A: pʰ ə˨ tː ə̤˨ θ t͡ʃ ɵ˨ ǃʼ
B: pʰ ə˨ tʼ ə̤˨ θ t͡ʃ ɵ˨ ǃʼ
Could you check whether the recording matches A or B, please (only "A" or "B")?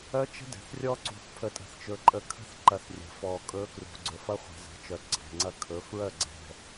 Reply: B